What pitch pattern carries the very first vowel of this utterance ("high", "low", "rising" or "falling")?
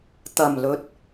low